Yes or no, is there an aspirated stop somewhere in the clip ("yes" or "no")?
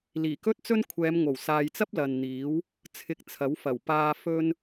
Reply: yes